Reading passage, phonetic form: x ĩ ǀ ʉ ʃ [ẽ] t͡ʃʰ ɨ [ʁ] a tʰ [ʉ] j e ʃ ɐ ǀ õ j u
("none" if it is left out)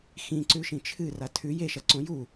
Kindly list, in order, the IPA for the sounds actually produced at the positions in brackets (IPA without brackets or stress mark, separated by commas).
ĩ, r, ʉ